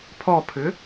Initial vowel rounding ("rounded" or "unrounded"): rounded